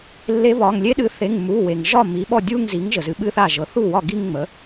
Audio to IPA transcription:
lːe˧˥βɒ˩˧˩ŋ lʲe˧˥ɗɨ˩˥θe˩˧˩ŋ mu˩˧˩we˩ŋ ʒɒ˥˩ mi˩˥ɓɔ˥˩dʲu˥˧ŋzi˩˥ŋ ʒə˩zɨ˩˥ɓɨ˥˧θa˥˩ ʒɤ˩˥θu˥˩wɒ˥˩ ɡi˥˧ŋŋ͡mə˩˥

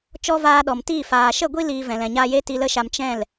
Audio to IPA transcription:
t͡ʃɔ˦vaː˧ɗɔ˨mtiː˦˨ faː˨ʃə˦˨ɡʷi˦ liː˧vɛ̃˨ lɛ̃˨ɲaː˧je˦ti˧ lə˦ʃa˧m t͡ʃɛ̃˦˨l

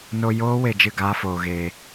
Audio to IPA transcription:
no˧ joː˦ we˧d͡ʒɨ˦˨ ɡaː˦foː˧ɣeː˧

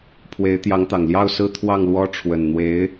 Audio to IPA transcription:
pʰwe˧˥ɪ̯t̪jɑ˧˥ŋt̪ɑ˨˩ŋ ljɑ˥˩ʊ̯sɹ̩˥ t̪ʰwɑ˥˩ŋlwɔ˥ ʈ͡ʂʰwə˨˩nn̪we˧˥ɪ̯

